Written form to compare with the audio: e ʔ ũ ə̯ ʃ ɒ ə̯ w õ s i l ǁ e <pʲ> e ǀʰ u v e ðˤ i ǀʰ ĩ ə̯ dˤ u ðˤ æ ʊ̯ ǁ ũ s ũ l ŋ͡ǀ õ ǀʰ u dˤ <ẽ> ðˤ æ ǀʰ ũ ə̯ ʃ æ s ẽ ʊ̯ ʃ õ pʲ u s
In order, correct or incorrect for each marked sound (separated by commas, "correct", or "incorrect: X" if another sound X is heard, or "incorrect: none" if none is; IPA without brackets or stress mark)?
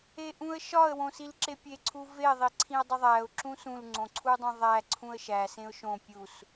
correct, correct